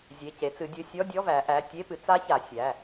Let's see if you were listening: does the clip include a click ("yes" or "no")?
no